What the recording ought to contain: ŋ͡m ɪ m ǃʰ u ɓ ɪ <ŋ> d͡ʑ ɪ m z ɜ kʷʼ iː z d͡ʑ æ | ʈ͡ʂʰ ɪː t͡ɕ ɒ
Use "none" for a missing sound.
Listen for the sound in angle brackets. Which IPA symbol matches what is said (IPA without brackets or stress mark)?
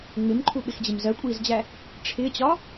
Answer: x